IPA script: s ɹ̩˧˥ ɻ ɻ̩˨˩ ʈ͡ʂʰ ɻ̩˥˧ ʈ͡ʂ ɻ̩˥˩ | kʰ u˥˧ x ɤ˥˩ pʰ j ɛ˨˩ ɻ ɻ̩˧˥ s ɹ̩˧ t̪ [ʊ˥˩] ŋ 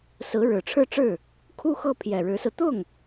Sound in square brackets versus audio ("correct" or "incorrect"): correct